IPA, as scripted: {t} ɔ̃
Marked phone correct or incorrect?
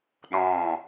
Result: incorrect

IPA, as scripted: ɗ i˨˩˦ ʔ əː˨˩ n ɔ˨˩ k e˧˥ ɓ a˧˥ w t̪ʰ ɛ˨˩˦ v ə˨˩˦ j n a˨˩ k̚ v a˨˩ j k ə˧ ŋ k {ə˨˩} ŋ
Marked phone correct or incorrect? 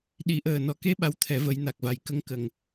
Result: incorrect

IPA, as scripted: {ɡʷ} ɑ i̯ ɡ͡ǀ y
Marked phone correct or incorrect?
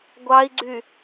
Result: correct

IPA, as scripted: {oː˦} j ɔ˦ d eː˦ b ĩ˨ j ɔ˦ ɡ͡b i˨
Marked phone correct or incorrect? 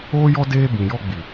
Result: correct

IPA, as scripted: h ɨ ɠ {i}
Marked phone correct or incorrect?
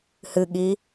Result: correct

